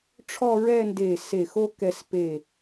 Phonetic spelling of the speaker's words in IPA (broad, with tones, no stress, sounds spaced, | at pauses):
ʈ͡ʂʰ ɔ˥˧ ɹ ɛ˥˧ n d e˧˩ s e˧˩ x o˥ k ɛ˧ s p e˧˩